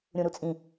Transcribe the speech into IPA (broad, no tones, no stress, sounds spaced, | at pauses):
ɾʲ ũ ɾ u t͡sʼ ĩ